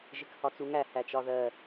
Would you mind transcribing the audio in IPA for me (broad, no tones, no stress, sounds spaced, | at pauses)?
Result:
ʒ ɪ k h ɒ t͡s u ŋ æ h æ t͡ʃ ɒ ð ɜ